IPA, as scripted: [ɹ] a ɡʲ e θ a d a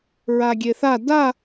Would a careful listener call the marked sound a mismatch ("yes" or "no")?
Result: no